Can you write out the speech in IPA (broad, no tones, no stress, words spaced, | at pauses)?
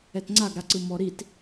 ɛtŋ͡ǀaɡɾaǀɯ mɔɾit